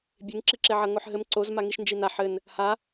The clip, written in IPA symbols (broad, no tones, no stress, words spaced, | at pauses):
bʲeŋǁiǁeʕɐ ŋoħɦɘm ǀozmaŋiʃ nd͡ʒina ħɘn | ha